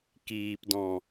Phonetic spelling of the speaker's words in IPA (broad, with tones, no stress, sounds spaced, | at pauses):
k iː˨ p d ɔ̃˨